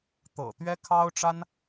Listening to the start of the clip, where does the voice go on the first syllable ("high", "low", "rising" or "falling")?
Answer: low